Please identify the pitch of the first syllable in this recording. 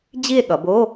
falling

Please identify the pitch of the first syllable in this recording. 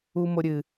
high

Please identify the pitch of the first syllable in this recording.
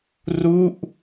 falling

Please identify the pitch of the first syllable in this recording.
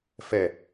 falling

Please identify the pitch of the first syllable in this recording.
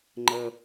low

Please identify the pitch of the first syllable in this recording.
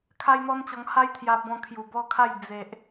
high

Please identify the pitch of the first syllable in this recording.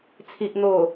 low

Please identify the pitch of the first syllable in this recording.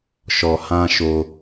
low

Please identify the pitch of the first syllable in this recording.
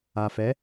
low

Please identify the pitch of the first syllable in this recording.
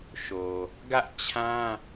low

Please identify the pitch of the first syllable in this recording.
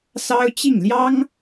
high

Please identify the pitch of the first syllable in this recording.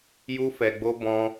high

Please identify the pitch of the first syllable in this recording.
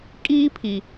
high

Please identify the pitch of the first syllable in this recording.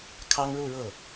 high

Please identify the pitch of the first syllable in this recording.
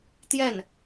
falling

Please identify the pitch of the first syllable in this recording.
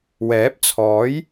rising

